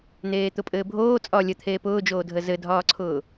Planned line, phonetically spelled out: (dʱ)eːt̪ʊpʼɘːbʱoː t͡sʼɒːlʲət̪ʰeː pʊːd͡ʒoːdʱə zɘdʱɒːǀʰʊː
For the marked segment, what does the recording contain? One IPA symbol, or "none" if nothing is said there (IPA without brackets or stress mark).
n̪